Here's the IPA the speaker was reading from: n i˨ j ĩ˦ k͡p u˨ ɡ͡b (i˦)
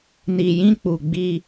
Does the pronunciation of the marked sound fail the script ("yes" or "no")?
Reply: no